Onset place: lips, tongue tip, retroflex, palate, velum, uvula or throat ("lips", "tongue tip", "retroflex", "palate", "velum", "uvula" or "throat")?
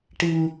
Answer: retroflex